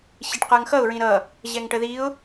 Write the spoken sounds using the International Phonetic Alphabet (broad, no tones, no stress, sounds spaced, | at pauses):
ɕ i ʈ q ə˞ ŋ x ʌ ʊ̯ ɹ ĩ ɾ ʌ | ʑ ɛ ŋ ʈ ə ð i ʊ̯